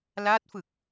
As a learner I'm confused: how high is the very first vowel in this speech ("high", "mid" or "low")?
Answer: low